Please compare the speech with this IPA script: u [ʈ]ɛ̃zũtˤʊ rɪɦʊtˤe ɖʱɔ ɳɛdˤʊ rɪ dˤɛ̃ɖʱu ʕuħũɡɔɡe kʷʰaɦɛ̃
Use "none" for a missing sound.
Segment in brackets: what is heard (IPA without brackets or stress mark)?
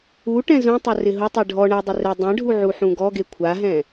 ʈ